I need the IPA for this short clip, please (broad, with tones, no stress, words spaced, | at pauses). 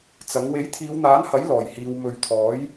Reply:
t͡sɐ˨˥ŋ we˨˥jt̪ʰiː˨˧wn̪aː˨˥nhɐ˨˥j lɔː˨˩jhiː˨˧w mɵ˨˧ɥt̪ʰɔː˨˥j